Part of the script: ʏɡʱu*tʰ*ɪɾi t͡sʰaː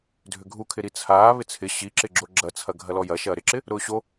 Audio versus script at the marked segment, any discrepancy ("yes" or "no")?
yes